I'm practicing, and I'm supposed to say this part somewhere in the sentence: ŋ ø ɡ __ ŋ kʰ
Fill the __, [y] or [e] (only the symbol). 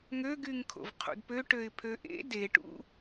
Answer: y